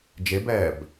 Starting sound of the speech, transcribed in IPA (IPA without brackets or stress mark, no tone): d͡ʒ